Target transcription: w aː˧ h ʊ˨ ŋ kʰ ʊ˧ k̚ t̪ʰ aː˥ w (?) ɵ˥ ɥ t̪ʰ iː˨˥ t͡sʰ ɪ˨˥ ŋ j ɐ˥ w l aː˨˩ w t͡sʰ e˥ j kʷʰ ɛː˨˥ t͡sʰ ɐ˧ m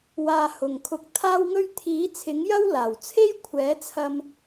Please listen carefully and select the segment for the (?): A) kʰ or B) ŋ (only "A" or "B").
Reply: B